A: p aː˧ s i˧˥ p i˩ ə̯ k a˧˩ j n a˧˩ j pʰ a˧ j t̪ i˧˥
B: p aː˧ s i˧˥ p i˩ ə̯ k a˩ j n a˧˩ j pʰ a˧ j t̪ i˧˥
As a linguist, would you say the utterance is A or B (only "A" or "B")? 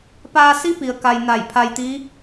B